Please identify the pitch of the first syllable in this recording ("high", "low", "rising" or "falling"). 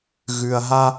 low